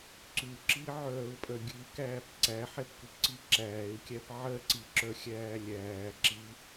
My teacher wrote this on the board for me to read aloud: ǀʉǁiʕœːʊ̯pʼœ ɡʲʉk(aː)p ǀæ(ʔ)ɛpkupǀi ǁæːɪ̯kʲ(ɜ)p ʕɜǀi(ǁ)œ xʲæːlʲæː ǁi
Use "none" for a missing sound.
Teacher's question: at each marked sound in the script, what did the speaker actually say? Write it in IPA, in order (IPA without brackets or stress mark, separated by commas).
æː, ħ, æ, ǁ